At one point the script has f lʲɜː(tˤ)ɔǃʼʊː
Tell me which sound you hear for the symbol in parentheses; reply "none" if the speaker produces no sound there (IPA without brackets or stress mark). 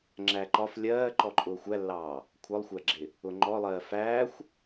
ǃ